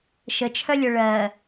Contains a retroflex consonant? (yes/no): yes